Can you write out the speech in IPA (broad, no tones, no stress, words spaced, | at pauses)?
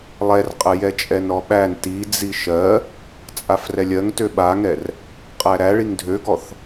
lˠɛrqʼə jɛt͡ʃʼɛnɾɔɓæn tid͡zi ʃɜ | t͡sʼafrɛlʲɜŋ tøɓaŋɛr | qʼæɾæɭiŋ dʱøɡɔθ